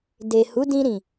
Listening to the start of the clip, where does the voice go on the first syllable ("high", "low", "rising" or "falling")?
low